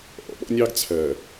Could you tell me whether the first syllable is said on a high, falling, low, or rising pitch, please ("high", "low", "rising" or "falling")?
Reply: low